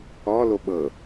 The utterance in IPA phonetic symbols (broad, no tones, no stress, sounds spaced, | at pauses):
ɔ l o ɓ ɤ